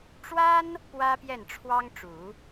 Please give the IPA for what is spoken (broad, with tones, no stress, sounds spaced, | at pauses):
ʈ͡ʂ w a˥ n | p w ä˥ p j ɛ˥˩ n ʈ͡ʂʰ w ɑ˥ ŋ ʈ͡ʂ u˨˩˦